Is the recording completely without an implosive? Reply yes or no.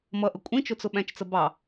no